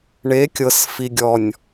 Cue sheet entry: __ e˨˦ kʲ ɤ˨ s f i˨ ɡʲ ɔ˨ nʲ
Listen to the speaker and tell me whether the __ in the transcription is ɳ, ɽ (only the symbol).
ɳ